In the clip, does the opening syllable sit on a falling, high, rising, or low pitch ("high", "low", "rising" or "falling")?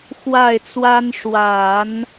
falling